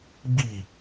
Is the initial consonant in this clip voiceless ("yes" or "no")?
no